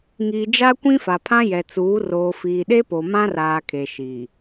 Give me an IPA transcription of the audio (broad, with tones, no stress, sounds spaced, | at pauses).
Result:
ŋ i˨ d͡ʒ a˦ kʷ ĩ˦ f a˨ pʰ ã˦ j ɛ˨ t͡s uː˨˦ r oː˨ f iː˨ ɗ e˦ p o˨ m ã˦ r aː˨ kʰ e˨ ʃ i˨